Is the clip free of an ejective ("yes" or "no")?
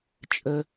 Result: no